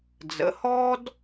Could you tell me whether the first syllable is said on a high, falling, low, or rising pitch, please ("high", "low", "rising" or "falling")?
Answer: rising